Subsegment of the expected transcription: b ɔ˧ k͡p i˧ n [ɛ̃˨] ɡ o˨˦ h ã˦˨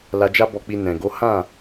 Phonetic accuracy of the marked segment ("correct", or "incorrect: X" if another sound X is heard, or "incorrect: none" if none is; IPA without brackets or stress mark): correct